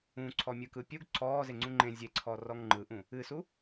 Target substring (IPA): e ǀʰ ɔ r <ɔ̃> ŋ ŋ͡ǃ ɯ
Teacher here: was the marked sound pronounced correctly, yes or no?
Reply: no